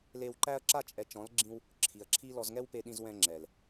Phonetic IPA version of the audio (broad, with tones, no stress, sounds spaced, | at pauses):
l e˧ w ǃ æ˦ ɐ̯ ǁ a˧ t͡ʃʼ ɛ˨ t͡ʃ ɔ̃˨˦ l ɡ͡ǁ ĩ˧ w | ǁʰ i˨ ɐ̯ ǁʰ i˦ l ɔ˧ z ŋ ɛ˦ w p e˧ ɗ ĩ˧ z w ɛ̃˧ ŋ͡ǁ ɛ˨ l